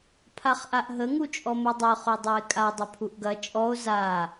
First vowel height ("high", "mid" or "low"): low